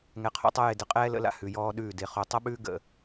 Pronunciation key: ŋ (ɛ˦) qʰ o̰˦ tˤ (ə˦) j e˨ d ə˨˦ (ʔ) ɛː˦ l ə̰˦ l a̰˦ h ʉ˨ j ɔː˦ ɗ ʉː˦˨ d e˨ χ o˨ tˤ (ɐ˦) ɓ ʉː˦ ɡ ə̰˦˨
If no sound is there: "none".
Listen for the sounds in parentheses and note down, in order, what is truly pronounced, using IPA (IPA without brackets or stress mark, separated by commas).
ɛ˨, ɐ˦, qʼ, ɐ˦